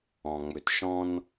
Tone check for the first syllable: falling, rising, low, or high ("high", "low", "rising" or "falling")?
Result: low